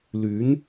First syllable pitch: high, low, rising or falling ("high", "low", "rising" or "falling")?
rising